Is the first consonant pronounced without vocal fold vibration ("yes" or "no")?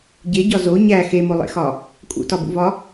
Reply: no